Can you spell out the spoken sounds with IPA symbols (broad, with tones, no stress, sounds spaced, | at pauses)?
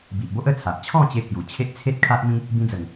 b i˨ ʔ b o˦ ʔ ə˥˧ t͡sʰ a˨ ʔ t͡ɕʰ ɔ̃˥˧ t͡ɕ e˧ k j u˨˩ t͡ɕʰ e˦ ʔ t͡sʰ e˦ t̚ kʰ a˦ ʔ m ĩ˦ | b ĩ˧ d͡z ə˨˩ ŋ